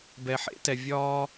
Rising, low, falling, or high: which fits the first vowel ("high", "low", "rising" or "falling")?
low